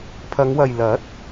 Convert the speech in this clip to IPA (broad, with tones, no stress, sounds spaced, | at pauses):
pʰ ɐ˨˧ ŋ w ɐ˨ j l ɐ˨˥ t̚